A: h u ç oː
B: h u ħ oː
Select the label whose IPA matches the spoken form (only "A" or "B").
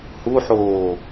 B